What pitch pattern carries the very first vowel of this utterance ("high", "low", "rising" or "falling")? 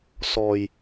low